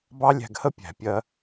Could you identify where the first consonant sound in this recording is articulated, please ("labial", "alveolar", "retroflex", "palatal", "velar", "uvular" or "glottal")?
labial